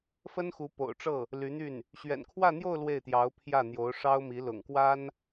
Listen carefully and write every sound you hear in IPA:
fə˥nxu˧˥ po̰˨˩ʊ̯ʈ͡ʂɤ˥˩ | ly˧˥n̪y˥˩n | ɕɥɛ̰˨˩nkʰwä˥˧n̪jo˥˧ʊ̯ lwe˥˩ɪ̯t̪jɑ˧˥ʊ̯ pʰjä˥˩n̪jo˧˥ʊ̯ ʂɑ˥ʊ̯mi˧˥ lʊ̰˨˩ŋkwa˥n

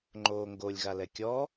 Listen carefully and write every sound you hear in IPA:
ŋ͡ǃoːŋɡolʲɣa lɛkʲɔ

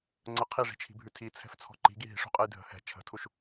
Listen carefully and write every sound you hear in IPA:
ŋ͡ǀə qʰiʐi̤t͡ʃʰi̤bʱʉ tʰit͡sʰɛ̤ft͡sʰɔ̤ ǃi̤ɡi ɦi̤ʂṳqʼɛj dʱə̤ hɛ̤ t͡ʃʰə̤tʰuʃ

